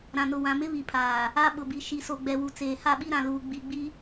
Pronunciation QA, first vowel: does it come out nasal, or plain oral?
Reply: nasal